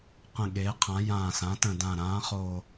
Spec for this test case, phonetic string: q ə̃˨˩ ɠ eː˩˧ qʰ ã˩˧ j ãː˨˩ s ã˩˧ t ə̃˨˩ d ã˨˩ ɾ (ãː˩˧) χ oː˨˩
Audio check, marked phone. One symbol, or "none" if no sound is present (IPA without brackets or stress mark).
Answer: ãː˩˧